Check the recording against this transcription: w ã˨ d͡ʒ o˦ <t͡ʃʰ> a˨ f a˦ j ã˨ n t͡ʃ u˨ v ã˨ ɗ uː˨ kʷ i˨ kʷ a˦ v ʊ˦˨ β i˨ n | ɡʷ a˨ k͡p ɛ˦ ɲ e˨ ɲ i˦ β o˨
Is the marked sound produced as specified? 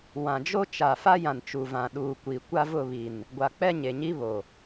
no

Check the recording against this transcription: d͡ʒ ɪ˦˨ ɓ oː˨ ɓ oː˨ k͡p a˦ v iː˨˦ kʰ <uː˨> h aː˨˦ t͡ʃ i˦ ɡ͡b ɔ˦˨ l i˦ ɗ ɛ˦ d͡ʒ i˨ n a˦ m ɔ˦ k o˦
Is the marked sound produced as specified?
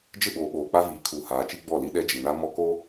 yes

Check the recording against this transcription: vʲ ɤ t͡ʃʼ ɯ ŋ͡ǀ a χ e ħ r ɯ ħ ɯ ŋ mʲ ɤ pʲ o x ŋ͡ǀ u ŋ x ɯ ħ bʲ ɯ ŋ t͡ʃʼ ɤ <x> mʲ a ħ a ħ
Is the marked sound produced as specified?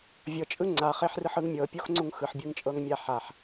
no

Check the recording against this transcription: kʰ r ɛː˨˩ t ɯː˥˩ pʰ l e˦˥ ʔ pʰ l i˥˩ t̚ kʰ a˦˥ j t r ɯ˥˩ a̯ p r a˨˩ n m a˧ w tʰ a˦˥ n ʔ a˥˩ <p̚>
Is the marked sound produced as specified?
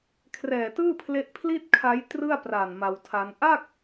no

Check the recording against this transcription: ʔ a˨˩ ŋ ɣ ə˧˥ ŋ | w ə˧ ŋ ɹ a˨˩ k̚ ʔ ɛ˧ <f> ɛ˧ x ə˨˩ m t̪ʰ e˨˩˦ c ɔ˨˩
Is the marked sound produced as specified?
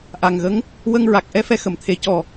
yes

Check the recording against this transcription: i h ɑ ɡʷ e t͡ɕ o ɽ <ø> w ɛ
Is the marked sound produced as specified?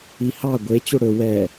no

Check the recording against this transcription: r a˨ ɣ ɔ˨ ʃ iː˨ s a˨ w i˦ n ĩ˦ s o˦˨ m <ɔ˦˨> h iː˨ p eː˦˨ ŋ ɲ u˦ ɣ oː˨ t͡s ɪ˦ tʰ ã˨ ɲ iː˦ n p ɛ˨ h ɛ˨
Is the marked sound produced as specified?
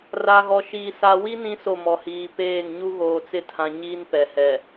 no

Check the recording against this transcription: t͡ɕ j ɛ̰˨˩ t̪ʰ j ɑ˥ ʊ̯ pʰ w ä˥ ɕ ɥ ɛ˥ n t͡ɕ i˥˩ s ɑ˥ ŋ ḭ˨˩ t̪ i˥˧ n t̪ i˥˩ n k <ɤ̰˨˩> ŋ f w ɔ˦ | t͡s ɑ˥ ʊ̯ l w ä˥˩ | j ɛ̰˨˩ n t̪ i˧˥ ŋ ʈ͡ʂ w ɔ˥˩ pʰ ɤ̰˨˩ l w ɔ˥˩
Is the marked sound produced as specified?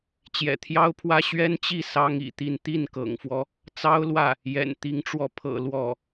yes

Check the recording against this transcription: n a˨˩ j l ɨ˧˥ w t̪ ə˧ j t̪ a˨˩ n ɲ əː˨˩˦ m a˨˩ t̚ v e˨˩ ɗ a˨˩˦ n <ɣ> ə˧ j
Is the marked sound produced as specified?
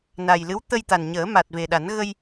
yes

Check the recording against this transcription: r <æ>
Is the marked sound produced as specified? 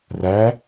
yes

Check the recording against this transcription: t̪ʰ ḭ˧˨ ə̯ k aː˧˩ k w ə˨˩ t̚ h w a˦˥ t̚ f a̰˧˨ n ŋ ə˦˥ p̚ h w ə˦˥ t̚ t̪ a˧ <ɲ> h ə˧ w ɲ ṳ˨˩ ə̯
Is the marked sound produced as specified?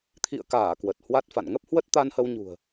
no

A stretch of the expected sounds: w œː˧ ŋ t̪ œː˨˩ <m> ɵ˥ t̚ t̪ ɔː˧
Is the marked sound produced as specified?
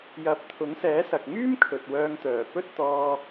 no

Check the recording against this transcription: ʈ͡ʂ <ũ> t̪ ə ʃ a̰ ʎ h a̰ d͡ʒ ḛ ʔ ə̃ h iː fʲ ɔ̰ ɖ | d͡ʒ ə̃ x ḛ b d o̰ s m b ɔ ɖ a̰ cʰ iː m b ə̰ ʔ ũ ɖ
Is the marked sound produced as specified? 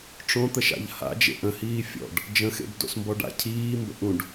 no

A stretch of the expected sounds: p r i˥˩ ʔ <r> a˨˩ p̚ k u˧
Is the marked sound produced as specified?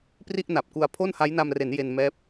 no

